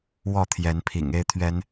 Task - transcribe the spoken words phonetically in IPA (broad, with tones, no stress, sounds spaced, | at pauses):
w ɔ˥˨ t̪ʰ j ɛ˨˦ n pʰ ḭ˨˩ ŋ e˦ ɪ̯ t̪ʰ ɥ ɛ˨˦ n